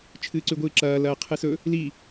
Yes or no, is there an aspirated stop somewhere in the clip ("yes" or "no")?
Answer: yes